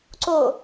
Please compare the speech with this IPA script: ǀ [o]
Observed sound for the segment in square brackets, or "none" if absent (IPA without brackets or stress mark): o